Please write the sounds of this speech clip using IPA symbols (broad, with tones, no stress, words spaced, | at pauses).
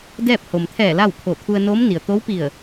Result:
dɛː˥˨p̚ ho˩mt̪ʰɛː˧˩ la˥˨wkʰo˧˩ t̪ʰu˧ə̯noː˧˥m ni˩ə̯t̪o˧˥wpi˧˩ə̯